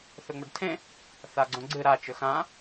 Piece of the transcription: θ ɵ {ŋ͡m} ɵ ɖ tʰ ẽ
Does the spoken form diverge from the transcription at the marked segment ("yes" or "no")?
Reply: no